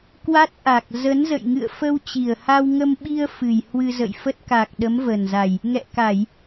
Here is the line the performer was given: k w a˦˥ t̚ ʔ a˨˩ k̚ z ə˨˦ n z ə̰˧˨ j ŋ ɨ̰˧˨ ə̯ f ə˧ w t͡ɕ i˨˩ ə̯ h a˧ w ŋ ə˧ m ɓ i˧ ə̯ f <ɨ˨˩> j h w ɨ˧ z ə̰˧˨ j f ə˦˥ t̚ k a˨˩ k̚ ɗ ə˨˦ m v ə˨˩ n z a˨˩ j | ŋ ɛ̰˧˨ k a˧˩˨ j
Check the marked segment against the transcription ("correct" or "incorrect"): correct